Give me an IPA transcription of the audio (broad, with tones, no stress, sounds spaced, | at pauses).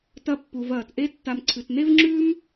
t ɐ˨ pː u˩ v ɐː˩ t ʔ e˦ tː a˨ m ǀʰ ɨ˩ t n e˦ v ŋ͡ǁ ʉː˦ m